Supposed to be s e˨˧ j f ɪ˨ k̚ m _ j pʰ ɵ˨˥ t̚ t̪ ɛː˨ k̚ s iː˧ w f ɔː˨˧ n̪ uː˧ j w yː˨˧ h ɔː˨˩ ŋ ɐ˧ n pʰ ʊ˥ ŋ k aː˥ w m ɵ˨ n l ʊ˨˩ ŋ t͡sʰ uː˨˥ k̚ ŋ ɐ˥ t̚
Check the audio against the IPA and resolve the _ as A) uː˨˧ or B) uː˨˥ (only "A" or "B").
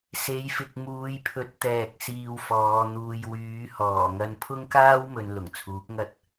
A